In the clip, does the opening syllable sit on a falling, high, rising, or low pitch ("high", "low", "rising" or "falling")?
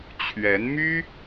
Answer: rising